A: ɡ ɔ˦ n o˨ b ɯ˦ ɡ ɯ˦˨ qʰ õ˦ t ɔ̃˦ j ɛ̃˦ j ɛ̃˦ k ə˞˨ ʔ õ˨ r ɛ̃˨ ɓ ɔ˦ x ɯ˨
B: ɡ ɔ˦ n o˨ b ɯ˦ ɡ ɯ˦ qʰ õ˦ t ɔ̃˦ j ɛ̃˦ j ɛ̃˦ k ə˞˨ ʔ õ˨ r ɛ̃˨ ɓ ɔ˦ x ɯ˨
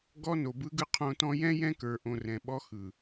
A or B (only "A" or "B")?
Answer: B